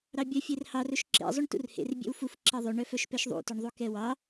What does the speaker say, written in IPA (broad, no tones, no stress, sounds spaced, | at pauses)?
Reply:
ɾ ɑ bʲ œ fʲ e r h ɑ r ɵ ʃ ǁ ḛ zˤ y ɳ t ṵ r h ḛ r bʲ ḛ w f u f ǁ ɛ ðˤ ʉ ɳ œ f œ ʃ p ɛ ʃ ðˤ ṵ t ø ɳ ðˤ u k ɛ w ɑ